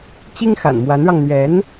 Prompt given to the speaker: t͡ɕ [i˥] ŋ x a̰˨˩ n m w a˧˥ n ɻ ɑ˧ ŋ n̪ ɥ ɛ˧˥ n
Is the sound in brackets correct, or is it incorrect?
correct